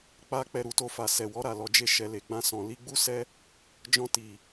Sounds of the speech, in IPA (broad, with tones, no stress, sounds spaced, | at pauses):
k͡p a˦ k͡p ɛ˧ ɾ u˨ t o˧ f a˨ s ɛ˨ w ɔ˨˦ ɾ a˦˨ l ɔ˨ d͡ʒ e˧ ʃ ɛ˨ l e˨ ɡ͡b ã˧ s ɔ̃˨ l i˨˦ ɡ͡b u˦ s ɛ˦ | d͡ʒ ɔ̃˧ t i˨